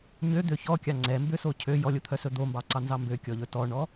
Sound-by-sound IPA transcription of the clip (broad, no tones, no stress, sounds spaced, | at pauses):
ɲ ø d̪ ø ç ɔ kʲ ɑ ŋ͡ǀ ɛ m b ø s o cʰ ø j ɔ lʲ o t̪ʰ œ s ɵ d̪ o m b ɑ ǀ ɑ n z ɑ m b ø kʲ ɔ ʎ ɵ t ɔ ɳ ɔ